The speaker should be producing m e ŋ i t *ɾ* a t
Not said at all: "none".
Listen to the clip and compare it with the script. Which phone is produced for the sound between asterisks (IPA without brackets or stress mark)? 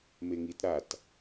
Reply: ɾ